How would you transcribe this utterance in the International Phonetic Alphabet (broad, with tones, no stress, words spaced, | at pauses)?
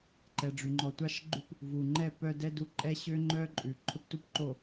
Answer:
ǃɛ˨ɖ͡ʐy˨ŋ͡ǃɔ˨ tʷɑ˦ʃɡ͡ǃʉ˦p | vu˨ŋ͡ǃɛ˦˨ pœ˦dɛ˦du˦ ǃʼɛ˦ɕø˦ ŋ͡ǃœ˦ǃʼʉ˨ ǃʰɵ˦ptu˦pǃo˨